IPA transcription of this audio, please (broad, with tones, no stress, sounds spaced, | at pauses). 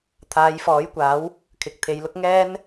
t̪ʰ aː˨˧ j f ɔː˨˥ j kʷ aː˨˥ w | kʰ ɪ˨ k̚ t̪ʰ e˨˧ j l ʊ˥ k̚ ŋ ɛː˥ n